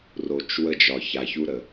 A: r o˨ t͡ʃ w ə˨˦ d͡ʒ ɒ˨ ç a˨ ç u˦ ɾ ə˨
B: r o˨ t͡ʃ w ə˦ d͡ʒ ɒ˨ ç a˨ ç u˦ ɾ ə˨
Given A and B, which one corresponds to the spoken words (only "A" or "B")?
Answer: B